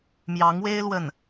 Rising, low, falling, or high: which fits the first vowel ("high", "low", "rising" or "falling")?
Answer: rising